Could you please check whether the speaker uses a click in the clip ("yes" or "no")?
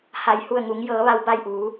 no